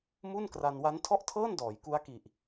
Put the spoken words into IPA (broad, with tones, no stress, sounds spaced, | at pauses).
m u˥˩ n k r a˧ n w a˦˥ n tʰ ɔ˥˩ ʔ tʰ ɤː˥˩ n d ɔː˩˦ j k u˦˥ a̯ k i˨˩ ʔ